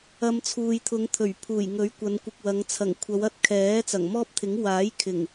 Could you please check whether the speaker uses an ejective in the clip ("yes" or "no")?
no